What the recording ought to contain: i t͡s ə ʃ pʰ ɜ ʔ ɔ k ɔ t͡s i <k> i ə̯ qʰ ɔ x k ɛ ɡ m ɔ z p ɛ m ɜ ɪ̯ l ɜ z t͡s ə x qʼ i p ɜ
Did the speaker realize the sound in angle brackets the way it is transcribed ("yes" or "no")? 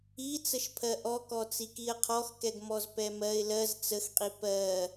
yes